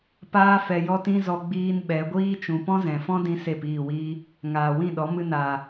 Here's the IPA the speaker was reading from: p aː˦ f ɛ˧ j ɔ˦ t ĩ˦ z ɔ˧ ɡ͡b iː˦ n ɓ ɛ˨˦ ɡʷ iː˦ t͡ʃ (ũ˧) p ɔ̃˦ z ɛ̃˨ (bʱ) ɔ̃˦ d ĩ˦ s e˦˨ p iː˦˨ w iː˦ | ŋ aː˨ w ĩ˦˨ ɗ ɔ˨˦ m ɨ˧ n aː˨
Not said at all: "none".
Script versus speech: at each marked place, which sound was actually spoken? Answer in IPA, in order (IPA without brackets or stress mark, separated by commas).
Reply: ũ˨, f